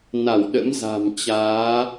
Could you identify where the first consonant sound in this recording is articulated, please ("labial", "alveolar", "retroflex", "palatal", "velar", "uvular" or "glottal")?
alveolar